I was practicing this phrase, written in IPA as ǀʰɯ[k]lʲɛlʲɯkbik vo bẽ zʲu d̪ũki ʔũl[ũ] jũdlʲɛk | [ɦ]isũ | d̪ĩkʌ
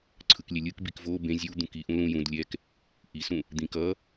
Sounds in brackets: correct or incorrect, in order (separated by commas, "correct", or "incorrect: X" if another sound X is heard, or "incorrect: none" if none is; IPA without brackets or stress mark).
correct, correct, incorrect: ʔ